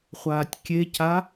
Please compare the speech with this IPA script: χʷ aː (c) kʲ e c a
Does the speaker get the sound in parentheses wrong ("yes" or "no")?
yes